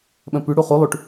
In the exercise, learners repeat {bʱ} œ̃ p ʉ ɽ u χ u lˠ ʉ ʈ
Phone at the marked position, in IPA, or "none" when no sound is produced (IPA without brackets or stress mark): ɓ